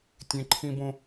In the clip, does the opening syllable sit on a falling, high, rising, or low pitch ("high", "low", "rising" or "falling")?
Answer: high